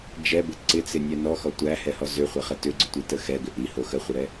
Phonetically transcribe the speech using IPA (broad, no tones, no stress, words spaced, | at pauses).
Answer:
d͡ʒɛbɪ ǀɪt͡sɪnʲɛ nɔxɔ tʷæhɛhɔ zʏχʷəχə tʏɡ͡ǀʏtʷitə xɛɡʏ ʔiho xəχʷiɾɛ